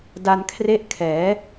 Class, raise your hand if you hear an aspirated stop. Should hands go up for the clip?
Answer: yes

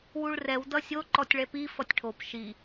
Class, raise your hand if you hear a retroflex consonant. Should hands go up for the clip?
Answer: yes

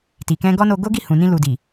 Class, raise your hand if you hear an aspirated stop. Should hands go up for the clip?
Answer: no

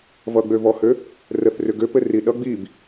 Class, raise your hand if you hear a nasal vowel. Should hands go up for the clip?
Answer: no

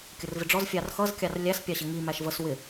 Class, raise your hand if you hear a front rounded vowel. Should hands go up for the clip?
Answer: no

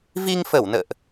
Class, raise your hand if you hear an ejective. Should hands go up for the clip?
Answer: no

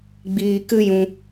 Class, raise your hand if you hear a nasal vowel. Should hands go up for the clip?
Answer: yes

